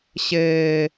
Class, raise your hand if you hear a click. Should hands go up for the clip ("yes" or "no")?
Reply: no